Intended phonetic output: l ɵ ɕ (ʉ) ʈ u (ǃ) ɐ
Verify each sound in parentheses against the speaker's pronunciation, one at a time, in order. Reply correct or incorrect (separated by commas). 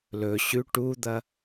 correct, incorrect